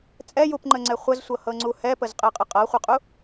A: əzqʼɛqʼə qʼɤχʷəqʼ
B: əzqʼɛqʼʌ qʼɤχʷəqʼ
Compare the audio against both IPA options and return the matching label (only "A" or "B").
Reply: A